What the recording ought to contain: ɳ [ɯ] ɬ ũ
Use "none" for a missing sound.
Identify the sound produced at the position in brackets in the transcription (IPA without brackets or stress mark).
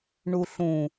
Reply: u